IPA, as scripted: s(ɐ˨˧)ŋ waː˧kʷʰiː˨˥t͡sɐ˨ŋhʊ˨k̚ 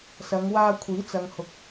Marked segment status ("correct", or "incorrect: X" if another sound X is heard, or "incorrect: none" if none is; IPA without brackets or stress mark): correct